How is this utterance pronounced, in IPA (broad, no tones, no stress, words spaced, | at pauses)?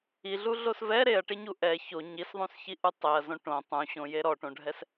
iɮuɮos vɛ ɾeɐ̯ʈeɲu ʔɛ ço ɲisðˤũsçiʔu tˤeɐ̯zõ ʈõ tˤũɕõje ɾɔʈõɖʱɛs